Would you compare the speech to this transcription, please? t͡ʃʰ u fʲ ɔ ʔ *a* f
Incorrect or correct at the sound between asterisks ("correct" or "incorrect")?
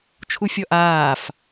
incorrect